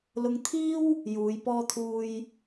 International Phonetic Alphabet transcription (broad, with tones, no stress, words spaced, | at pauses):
lʊ˧ŋt̪ʰiː˥w | juː˨˧jpɔː˥t̪ʰuː˥j